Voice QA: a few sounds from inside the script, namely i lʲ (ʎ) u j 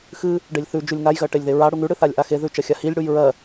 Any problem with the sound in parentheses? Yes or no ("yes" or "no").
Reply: yes